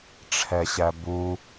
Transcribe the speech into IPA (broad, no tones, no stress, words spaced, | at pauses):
ʈ͡ʂʰɛɕæbu